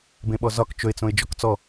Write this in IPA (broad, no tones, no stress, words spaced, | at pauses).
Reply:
bẽɓɔzɒk t͡ʃɵɪ̯t͡sõɪ̯ d͡ʒɔkt͡sɔ